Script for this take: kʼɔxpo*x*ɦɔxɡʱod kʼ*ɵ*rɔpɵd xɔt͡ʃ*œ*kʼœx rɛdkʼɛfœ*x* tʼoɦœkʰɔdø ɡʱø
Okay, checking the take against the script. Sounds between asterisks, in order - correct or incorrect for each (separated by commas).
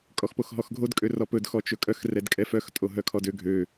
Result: correct, incorrect, incorrect, correct